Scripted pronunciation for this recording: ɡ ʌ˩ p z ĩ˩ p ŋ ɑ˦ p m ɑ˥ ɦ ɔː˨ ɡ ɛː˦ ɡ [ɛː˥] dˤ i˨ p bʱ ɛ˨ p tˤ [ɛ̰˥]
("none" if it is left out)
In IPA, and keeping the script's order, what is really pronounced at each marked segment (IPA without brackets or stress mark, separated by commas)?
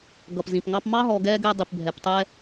ɛː˦, ɛ˥